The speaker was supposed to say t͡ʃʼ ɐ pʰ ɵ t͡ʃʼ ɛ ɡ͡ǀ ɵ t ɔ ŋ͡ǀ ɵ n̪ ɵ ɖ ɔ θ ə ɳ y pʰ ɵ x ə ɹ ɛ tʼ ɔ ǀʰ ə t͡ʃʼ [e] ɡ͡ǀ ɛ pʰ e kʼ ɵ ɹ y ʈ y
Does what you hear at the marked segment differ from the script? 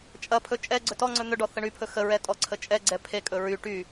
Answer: yes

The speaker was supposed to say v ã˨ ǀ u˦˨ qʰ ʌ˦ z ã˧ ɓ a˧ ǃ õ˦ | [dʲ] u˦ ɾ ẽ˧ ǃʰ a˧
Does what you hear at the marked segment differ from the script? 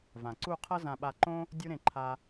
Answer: no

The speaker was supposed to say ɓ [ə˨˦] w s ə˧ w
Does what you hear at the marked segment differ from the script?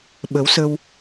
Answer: no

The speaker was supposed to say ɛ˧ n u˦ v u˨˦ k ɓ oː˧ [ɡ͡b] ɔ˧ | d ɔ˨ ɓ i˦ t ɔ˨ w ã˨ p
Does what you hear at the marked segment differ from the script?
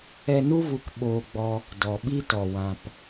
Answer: no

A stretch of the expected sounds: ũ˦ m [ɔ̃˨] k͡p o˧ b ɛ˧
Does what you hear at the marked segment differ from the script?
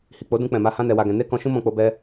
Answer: yes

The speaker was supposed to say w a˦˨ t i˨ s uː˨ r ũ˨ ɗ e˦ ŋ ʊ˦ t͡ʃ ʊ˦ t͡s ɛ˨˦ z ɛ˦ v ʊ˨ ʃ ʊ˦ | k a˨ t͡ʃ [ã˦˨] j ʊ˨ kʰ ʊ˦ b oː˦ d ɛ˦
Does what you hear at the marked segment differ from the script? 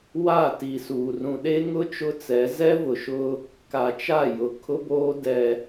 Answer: yes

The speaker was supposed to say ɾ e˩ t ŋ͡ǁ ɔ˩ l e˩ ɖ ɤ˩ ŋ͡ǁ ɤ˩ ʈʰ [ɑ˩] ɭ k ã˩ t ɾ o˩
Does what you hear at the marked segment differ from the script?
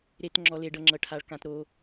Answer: yes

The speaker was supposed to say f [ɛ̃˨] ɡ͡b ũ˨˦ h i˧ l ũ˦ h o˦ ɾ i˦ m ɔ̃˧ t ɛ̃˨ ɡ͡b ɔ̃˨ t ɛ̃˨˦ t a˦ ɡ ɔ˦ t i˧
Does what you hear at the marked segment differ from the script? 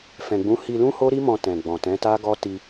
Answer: no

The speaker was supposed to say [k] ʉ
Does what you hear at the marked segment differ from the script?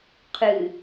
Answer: yes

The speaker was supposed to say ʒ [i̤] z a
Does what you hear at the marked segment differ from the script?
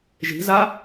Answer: no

